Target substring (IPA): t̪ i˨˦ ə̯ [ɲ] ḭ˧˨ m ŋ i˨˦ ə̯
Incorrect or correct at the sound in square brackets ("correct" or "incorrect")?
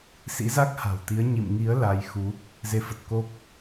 correct